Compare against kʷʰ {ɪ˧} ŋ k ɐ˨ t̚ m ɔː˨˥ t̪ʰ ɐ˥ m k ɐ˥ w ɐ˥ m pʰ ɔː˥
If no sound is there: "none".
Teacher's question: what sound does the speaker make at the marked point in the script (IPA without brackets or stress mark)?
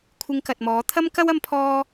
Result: ɪ˧